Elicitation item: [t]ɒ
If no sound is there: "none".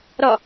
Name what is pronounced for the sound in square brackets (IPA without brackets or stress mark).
ɾ